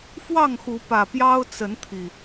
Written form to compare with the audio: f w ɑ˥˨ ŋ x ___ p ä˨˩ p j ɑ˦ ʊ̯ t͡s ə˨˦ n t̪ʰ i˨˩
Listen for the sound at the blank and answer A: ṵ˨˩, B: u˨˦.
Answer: B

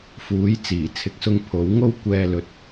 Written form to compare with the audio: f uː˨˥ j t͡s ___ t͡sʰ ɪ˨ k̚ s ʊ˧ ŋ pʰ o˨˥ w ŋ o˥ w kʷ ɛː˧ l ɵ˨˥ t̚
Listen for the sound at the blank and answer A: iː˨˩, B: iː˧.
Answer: A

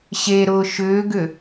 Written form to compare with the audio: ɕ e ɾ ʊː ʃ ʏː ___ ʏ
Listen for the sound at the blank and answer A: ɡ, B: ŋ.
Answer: A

